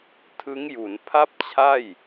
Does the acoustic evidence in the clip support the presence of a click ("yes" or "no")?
no